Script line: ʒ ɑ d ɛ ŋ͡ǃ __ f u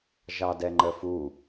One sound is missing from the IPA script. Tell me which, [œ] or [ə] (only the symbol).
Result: ə